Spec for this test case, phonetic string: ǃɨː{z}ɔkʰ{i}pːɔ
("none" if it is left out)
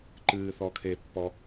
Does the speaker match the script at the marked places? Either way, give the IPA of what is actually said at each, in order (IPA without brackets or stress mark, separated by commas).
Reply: θ, e